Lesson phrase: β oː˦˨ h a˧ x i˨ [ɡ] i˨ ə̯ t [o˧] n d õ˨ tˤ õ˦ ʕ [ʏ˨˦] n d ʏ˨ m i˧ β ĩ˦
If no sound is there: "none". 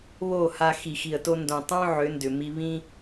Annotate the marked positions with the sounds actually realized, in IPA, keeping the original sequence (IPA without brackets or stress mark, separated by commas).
x, o˧, ʏ˨˦